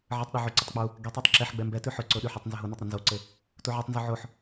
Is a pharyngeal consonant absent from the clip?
no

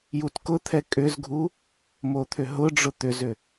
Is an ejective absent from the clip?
no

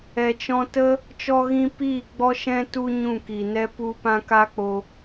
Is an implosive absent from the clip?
yes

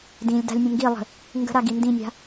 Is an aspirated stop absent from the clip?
yes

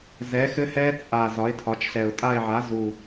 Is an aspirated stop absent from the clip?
no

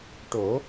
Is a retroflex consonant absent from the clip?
no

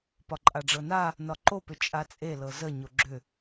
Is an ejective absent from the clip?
no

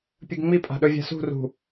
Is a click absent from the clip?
yes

